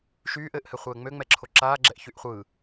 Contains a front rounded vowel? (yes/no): yes